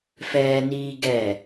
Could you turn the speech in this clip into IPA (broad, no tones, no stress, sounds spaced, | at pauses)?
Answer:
f ɛː n iː ɡ ɛ